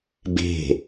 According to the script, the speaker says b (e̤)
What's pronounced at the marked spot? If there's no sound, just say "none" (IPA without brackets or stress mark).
e̤